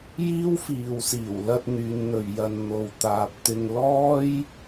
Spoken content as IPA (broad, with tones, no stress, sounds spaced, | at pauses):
j iː˥ w f iː˨ w s iː˨˩ w l ɐ˧ t̚ n̪ yː˨˧ n n̪ ɵ˨ ɥ j ɐ˧ n n̪ o˨ w t̪ aː˨ p̚ t̪ ɪ˧ ŋ l ɔː˥ j